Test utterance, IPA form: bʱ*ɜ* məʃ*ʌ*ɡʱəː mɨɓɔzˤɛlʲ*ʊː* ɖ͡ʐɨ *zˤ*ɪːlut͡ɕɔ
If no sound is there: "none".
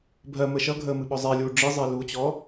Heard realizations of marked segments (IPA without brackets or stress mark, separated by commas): ɜ, ʌ, uː, zˤ